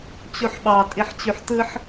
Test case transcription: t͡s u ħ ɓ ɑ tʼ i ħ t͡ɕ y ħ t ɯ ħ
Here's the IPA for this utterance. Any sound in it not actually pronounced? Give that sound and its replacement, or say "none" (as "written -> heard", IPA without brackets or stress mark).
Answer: t͡s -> t͡ɕ